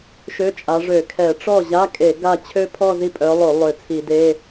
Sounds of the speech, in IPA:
ʃ ø˧˥˧ t͡ʃʼ a˨˦ ʐ ø˧˩˧ kʰ ɛ˧˩˧ ʈ͡ʂ ɔ˥˩ ʑ a˧˥˧ kʼ e˧˩˧ ɡ a˥˩ t͡ɕʰ ø˥ pʰ ɔ˥˧ z i˥˩ pʼ œ˨˦ lˠ o˧˩˧ lˠ ø˧˩˧ t͡sʰ i˧˩˧ d e˧˥˧

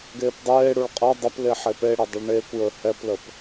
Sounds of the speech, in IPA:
ɡ eː p dˤ eː ɽ u ɭ qʼ ɐ dˤ ɐ p l e ħ e p e ɽ ɛ dˤ ɯ ɭ ɳ eː kʷ j ə˞ h ɛ p l ə p

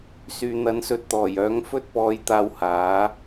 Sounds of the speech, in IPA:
s yː˨ n̪ ɐ˨˧ n s ɵ˧ t̚ t̪ ɔː˨˩ j œː˨˥ ŋ f ɵ˥ t̚ p ɔː˨˧ j t̪ aː˧ w h aː˨˥

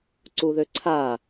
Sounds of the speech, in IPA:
ǀ u ð ø ǀʰ a

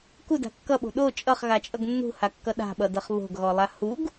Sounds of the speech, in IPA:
k u d a̤ kː ʌ ɓ o̤ ɗ o t͡ʃʼ ʌ χ ɣ a t͡ʃʼ ʌ ɡ nː ṳ h a kː ʌ ɗ a̤ ɓ ʌ d ʌ χ β o̤ ɡ ɣ ɔ lˠ a h u ɡ

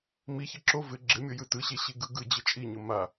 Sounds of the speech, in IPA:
m i ç e ǁ o v ɪ ɡ͡ǁ ɪ mʲ o j ɯ t ɯ ɕ e ɕ i ɡ ɯ ɡ ɯ d͡ʑ ɯ t͡ʃʼ i ɲ ʊ m a

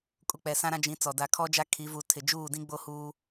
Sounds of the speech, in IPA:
kʼ u˨ k͡p ɛ˨ s ã˦ ɾ ã˦ d͡ʒ ĩ˨˦ t͡s ɔ˨ d a˦ kʰ ɔ˦ d͡ʒ a˦ kʰ i˨˦ v u˨˦ tʰ ɪ˨ d͡ʒ uː˦˨ d ĩ˦ ɡ͡b o˦ h uː˦

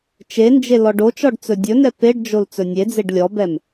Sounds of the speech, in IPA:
t͡ʃ e n d͡ʒ e l ɔ ɖ o t͡ʃ ɔ ɖ t͡s ɵ dʲ ɵ n ɛ p e ɖ d͡ʒ o l t͡s ɵ nʲ e d͡z e ɖ lʲ ɔ b ɛ m

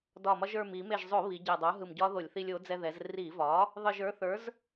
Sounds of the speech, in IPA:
d ɒ˧˩ m ɒ˧ ʒ ə˞˧˩ m i˧˩˧ m e˧˩ ʒ zˤ o˧˩˧ β i˩˧ ɟ ɛ˧˩ dˤ o˩˥ ɦ ɯ˧˩ m ɟ ɒ˦˥ ð o˧˩˧ lʲ θ i˧ lʲ o˩˥ d͡z ɛ˧ ð ɛ˩˧ z r i˧˩˧ v ɒ˩˥ | ðˤ ɯ˧˩ ʒ ə˞˩˥ θ ə˞˩˥ z

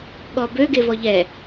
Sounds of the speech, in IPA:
ɠ ɔ b ø ɡ e v ɔ ʎ ɛ

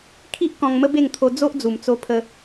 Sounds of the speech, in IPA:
kʰ i˦ ʔ k ɔ̃˧ ŋ m ə˦ b e˥˧ ŋ t̪ʰ o˧ d͡z o˦ ʔ d͡z u˨˩ m t͡s o˧ pʰ ə˧

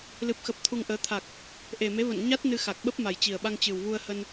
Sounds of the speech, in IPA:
l ɨ˨˩ p̚ x ə˨˩ p̚ t̪ʰ u˧ ŋ ʔ əː˨˦ t̪ʰ a˨˩ k̚ | ʔ e˨˩ m e˨˦ v ə̰˧˨ n ɲ a˦˥ t̚ n ɨ˧ x a˨˩ k̚ ɓ ə˦˥ p̚ m a˨˩ j t͡ɕ i˨˩ ə̯ ɓ a˧ ŋ t͡ɕ ɨ˨˩ w v u˧ ə̯ h ə˧ n

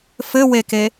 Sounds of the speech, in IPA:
f ɘ w e k e

